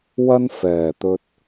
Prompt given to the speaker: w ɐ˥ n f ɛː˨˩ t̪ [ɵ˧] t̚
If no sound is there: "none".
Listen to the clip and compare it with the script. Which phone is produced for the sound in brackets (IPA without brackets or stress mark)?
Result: ɵ˧